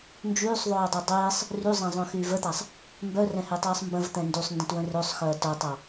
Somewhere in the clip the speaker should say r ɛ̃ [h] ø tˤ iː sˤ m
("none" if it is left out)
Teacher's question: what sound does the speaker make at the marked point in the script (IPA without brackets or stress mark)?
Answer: h